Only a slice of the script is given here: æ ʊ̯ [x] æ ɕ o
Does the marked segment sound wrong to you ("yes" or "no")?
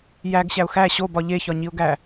no